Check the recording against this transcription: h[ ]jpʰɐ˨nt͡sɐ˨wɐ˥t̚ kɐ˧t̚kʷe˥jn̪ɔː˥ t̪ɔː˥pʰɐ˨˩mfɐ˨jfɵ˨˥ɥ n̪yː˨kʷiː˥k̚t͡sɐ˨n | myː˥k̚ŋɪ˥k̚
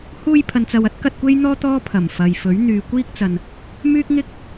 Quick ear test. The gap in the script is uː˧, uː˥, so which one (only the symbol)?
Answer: uː˧